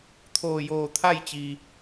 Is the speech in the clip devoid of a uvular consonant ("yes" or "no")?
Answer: yes